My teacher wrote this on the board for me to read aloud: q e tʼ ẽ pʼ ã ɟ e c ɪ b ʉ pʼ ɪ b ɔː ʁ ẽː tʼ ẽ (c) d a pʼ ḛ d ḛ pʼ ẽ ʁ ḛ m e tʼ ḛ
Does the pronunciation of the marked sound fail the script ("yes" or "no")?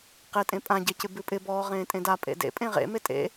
yes